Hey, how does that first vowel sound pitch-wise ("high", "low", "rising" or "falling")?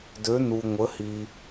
rising